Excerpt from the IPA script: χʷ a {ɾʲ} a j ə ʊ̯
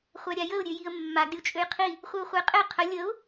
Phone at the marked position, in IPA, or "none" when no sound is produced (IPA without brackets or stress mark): ɾʲ